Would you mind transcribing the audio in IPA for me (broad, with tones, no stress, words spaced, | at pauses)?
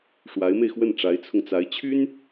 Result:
ʂwa˧˥ɪ̯me˧ɪ̯xwə˥˩n ʈ͡ʂa˧˥ɪ̯t͡sʰʊ˧ŋt͡sa˧˥ɪ̯ t͡ɕʰy˥n